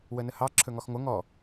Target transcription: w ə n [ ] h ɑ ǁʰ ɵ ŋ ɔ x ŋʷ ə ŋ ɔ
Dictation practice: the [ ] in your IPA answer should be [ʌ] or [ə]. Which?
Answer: ə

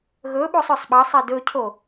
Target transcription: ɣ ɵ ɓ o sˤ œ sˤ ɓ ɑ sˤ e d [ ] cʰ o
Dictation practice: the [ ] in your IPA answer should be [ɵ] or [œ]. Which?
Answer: ɵ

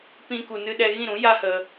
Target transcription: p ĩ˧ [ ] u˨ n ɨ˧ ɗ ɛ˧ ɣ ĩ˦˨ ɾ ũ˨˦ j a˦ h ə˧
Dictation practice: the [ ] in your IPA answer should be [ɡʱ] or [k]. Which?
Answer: k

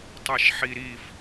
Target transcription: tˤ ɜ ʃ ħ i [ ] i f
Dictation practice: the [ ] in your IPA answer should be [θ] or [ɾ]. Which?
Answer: ɾ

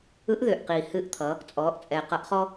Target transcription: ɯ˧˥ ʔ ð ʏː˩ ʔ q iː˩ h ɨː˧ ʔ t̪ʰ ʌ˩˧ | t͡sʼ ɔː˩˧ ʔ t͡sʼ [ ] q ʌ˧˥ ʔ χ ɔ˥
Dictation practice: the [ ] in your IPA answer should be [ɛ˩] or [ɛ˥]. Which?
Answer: ɛ˩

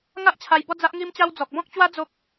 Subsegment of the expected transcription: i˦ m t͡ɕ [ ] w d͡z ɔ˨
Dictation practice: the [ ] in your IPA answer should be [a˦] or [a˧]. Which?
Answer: a˦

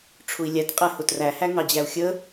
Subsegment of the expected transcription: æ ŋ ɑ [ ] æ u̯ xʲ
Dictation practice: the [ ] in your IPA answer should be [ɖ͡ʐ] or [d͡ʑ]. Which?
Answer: d͡ʑ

